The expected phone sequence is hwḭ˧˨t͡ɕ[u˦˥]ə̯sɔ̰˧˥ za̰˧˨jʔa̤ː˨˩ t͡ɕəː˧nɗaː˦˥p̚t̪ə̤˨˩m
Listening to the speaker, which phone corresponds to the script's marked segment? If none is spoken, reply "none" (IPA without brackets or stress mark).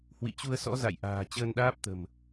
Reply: u˧